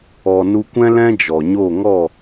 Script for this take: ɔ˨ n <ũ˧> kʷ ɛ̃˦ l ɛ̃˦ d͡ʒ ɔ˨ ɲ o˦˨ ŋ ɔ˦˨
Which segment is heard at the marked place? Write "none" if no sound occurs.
u˧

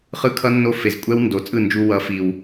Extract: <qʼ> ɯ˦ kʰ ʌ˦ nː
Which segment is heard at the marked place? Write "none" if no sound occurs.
χ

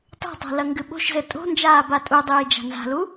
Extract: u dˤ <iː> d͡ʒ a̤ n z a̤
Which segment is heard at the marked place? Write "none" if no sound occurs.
iː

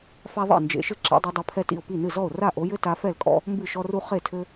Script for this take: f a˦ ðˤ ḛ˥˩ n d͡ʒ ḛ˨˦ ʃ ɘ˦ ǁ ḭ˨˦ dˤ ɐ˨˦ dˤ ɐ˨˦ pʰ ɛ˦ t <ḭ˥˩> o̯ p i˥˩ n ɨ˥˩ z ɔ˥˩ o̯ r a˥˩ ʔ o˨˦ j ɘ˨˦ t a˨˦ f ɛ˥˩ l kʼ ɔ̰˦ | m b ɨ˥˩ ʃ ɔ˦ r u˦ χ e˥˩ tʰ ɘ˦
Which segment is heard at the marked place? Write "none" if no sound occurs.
ḭ˥˩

